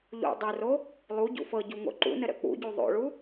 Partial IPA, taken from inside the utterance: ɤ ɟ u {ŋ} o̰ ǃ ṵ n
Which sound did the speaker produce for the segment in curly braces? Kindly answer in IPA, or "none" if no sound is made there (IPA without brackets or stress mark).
ŋ